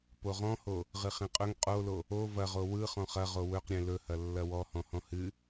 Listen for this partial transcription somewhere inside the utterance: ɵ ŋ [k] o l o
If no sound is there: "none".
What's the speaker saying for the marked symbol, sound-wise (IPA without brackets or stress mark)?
qʼ